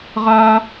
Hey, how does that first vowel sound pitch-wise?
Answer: high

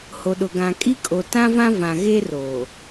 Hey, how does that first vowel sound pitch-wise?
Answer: low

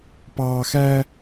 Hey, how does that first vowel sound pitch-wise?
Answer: high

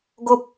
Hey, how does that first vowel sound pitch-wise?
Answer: high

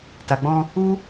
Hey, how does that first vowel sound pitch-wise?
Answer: low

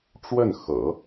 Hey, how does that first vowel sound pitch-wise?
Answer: falling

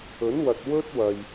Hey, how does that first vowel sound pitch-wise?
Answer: rising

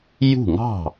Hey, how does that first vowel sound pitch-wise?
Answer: falling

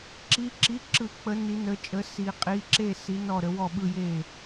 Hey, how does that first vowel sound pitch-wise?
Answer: rising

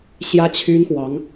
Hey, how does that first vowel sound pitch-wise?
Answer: high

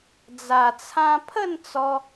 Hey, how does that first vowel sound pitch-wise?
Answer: low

